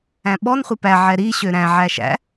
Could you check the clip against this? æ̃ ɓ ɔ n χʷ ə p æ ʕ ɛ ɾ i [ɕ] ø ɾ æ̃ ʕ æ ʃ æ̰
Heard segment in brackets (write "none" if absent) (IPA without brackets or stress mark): ɕ